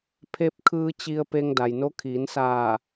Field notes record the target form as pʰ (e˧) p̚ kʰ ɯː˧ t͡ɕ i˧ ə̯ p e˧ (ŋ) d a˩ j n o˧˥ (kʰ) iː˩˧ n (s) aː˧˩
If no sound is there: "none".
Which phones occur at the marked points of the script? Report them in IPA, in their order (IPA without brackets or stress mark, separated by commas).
e˧, ŋ, kʰ, s